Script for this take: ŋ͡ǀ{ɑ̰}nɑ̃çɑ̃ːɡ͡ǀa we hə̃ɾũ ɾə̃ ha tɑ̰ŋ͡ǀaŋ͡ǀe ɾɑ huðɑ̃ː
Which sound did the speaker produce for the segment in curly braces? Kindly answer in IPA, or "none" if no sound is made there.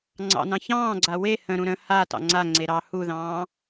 ɑ̰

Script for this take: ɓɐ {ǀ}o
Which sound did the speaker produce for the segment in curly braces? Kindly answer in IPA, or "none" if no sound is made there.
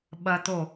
t̪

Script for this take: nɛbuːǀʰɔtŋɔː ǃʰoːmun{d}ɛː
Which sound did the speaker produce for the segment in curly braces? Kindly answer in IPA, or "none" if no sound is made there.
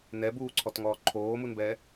b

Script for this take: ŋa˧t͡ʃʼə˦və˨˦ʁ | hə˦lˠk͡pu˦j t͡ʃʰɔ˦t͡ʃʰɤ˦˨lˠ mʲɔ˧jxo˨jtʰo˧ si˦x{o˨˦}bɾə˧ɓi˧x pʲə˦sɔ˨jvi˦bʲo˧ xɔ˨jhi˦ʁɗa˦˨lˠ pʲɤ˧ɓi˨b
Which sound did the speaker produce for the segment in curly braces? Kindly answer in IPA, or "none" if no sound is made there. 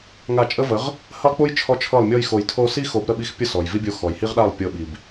o˨˦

